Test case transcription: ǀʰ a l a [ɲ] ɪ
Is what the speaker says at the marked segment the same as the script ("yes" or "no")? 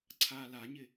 yes